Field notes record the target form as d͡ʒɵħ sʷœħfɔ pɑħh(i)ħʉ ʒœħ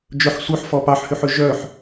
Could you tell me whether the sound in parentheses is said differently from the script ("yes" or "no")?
yes